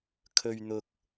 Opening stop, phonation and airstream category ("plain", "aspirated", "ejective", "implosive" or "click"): aspirated